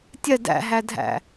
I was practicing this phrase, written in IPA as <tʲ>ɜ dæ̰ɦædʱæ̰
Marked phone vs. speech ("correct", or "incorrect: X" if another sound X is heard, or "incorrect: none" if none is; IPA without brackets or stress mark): correct